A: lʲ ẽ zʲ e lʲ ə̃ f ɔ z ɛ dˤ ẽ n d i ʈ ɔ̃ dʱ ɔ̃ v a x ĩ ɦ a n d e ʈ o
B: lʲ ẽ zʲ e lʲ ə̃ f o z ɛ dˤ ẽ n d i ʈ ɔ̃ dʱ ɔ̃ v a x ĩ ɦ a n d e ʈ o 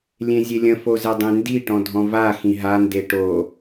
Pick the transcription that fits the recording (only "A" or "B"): B